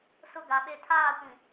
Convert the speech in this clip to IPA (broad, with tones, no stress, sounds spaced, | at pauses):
s ʊ˦ ɡ a˨ ɓ e˦ tʰ aː˦˨ kʷ ĩ˨